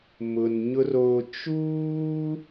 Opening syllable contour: low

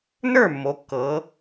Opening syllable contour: falling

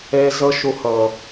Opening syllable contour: high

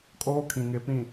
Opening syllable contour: high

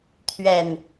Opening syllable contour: low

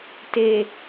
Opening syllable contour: low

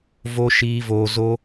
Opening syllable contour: high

